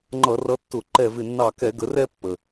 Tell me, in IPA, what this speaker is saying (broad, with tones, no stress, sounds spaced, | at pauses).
ŋ͡ǃ ʌ˧˩˧ r ʌ˨˦ tː ʊ˧˩˧ ǃ ɛ˧˩ v ɪ˧˩ nː ɑ˧˩ k ɛ˧˩˧ ɡ ə˨˦ r ɛ˥˧ pː ə˩